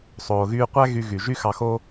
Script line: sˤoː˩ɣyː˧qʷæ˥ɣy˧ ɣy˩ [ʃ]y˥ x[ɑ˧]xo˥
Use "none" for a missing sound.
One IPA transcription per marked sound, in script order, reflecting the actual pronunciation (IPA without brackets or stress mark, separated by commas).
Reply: ʒ, ɑ˧